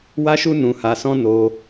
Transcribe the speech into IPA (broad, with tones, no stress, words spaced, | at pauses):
wa˦ʃu˦ nũ˧ha˧sɔ̃˦ no˧